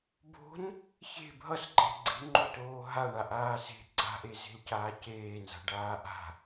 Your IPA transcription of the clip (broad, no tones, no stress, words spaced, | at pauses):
bo̤n | çe̤ bʱʌsǃʼe̤ ɡ͡ǀe̤ŋ͡ǃotoː ɦaɳaʔaː se̤ ɡ͡ǀa̤ʔeze̤lcaː ceːnza̤ɖaː ʔa̤